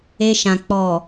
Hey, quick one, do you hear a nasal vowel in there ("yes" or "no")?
yes